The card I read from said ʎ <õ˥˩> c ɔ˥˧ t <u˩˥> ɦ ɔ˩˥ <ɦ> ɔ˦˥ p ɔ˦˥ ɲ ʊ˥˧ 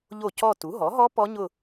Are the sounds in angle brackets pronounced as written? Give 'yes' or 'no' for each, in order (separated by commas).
no, yes, yes